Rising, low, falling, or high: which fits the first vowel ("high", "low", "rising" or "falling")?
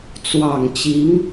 low